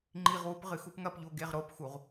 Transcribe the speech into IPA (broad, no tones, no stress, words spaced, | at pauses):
ŋ͡ǃiʁwup ʁɨxupŋɐpʎo ɡeʁɾopxuʁ